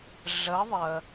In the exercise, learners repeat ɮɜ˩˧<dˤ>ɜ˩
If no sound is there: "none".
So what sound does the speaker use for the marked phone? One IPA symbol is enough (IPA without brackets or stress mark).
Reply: ðˤ